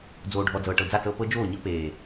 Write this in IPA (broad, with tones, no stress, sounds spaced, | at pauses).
d͡z oː˨ ɖʱ ɔ˨ d͡z ɤː˨ ʈ ɤ˨ d͡z a˦˨ t͡s ɤː˦ p ɤ˦ d͡ʒ oː˦˨ ɲ ɤ˦ p eː˨